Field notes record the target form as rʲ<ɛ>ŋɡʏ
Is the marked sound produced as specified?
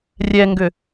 yes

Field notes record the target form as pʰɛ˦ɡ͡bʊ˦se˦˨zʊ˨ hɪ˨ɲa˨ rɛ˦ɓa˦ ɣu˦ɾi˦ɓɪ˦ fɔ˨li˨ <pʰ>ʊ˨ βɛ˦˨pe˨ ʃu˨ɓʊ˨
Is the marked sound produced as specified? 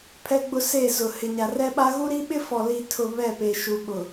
no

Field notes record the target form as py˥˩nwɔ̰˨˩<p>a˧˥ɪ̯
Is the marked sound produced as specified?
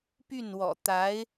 no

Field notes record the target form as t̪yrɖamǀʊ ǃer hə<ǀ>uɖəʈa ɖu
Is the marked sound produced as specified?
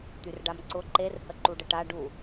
no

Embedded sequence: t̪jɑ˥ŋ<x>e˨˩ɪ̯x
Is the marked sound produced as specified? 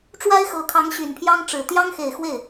yes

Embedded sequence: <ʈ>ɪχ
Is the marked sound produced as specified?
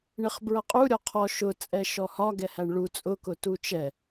no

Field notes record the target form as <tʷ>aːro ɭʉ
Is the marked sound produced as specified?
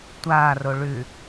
yes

